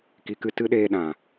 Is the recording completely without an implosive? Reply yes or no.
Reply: no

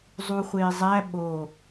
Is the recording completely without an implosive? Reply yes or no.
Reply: no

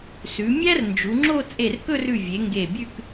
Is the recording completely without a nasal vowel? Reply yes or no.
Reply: yes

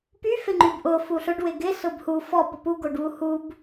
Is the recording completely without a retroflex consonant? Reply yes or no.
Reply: no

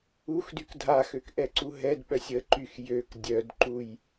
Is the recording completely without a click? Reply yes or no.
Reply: no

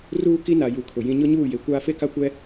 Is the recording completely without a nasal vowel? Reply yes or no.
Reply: no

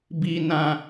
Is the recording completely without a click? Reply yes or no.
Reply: yes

